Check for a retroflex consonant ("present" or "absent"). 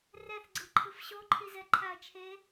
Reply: absent